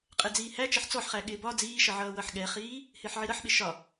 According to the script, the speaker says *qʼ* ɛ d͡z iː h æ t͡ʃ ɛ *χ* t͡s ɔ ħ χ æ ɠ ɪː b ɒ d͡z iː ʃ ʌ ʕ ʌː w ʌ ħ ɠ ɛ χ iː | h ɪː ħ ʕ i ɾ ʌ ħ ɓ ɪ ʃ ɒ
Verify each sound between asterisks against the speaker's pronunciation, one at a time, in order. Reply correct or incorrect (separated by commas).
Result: correct, incorrect